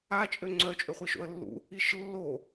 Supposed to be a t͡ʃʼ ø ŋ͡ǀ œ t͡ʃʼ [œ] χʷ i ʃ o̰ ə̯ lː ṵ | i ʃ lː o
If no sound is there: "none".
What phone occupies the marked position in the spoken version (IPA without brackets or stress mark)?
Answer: ø